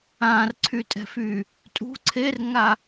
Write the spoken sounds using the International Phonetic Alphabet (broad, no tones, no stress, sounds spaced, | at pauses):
ã r ǀʰ y tʼ ɛ̤ f y | tʼ ṳ ǀʰ e r ŋ a